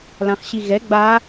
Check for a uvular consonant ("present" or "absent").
present